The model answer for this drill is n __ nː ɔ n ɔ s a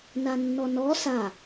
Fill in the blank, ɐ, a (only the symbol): a